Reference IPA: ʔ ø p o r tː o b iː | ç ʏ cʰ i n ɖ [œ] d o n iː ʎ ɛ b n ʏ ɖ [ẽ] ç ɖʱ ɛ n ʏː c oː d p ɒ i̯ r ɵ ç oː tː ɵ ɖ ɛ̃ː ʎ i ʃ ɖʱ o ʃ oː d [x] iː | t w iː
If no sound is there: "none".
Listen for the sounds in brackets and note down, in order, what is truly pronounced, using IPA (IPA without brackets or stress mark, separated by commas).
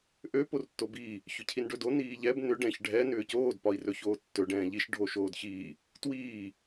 ɵ, ɛ̃, ç